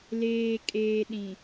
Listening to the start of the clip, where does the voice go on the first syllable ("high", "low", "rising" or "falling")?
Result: low